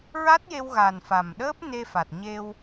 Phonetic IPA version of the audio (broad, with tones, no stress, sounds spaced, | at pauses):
ɹ a˦˥ t̚ j e˧ w ɣ a˨˩ n f a˨˩ m ɗ əː˦˥ p̚ n e˧ f a˨˩ t̚ ɲ e˧ w